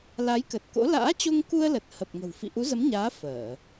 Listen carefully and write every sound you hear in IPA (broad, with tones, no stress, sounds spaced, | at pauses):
l a˨˦ j k ə˨˩ t̚ k o̰˧˥ l a̰ː˧˥ t͡ɕ o˧ ŋ k u˧ ə̯ l ə˨˩ t̚ h ə˨˩ p̚ ŋ ə̤˨˩ w f ḭ˧˨ ʔ u˨˦ z ə˨˦ m ɲ aː˨˦ f əː˧˩˨